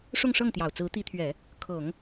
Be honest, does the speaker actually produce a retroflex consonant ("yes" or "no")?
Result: yes